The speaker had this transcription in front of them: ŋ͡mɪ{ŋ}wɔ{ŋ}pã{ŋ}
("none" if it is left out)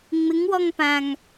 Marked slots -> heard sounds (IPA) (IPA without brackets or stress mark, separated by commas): ŋ, ŋ, ŋ